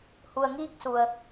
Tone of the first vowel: low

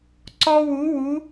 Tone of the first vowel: high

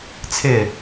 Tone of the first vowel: falling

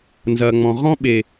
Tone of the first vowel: low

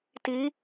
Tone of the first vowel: rising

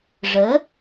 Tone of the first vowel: rising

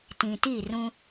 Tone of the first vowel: low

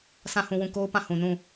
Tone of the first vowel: falling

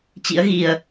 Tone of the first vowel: rising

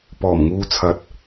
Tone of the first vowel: low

